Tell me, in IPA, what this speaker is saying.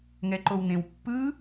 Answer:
ŋɛǃown̪ẽw pːɯ

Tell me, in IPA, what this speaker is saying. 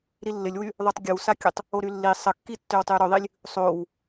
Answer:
ɾilːɪlʲwy | ðˤotˤɡʲəwsakʲətˤ | oɾylːi sˤəkːi tːʏwtˤyɾɵðˤilʲ | sˤow

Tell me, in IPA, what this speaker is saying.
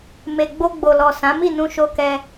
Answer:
me˨ ɡ͡bo˧ɡ͡bo˨lɔ˨ sã˨˦ mi˦˨nũ˧ʃo˧kɛ˧

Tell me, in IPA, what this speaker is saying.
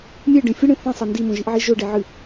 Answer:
mʲeɖẽ fʲɨɽẽ θẽsˤɐ ndimõʒiʔʕi ʒɵɖeʕɨ

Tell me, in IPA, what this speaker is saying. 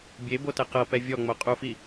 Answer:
bʲebotɛ qɤpɛ vʲɔŋ͡mo qʼufi

